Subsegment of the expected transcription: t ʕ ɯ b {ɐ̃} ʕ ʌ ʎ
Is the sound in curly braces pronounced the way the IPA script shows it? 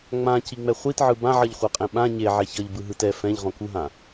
no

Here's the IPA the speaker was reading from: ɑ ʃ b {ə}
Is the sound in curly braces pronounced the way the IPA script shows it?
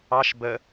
yes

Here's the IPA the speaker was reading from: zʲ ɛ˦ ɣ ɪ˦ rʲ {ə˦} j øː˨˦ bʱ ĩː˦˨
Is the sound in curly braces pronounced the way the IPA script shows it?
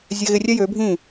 no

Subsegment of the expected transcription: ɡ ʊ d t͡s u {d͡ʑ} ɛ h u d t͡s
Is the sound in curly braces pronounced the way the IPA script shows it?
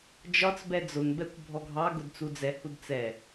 no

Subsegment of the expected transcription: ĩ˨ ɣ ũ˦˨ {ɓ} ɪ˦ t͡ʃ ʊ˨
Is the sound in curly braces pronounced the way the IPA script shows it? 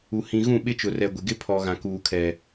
yes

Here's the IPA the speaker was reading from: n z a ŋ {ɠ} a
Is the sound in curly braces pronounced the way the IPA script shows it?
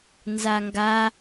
no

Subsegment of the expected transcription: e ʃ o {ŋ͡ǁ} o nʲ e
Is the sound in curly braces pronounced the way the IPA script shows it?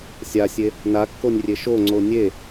no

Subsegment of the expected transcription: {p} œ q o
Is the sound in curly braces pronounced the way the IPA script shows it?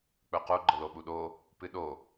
no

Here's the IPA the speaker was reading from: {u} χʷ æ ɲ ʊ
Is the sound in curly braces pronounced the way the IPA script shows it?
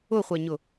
no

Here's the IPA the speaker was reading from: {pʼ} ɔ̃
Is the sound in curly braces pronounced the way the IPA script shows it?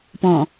no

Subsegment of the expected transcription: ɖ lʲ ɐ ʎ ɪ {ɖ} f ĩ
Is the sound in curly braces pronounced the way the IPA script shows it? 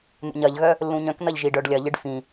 yes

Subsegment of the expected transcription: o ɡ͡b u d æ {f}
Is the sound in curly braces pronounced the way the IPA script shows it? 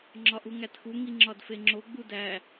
no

